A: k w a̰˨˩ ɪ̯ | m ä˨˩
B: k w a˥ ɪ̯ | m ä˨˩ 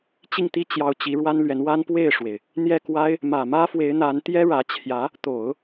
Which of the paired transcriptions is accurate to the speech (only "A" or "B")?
B